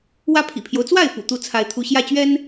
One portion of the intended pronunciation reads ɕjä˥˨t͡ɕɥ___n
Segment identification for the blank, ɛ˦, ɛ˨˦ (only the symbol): ɛ˦